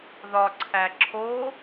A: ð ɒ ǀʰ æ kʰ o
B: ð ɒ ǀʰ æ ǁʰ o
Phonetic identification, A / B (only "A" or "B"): B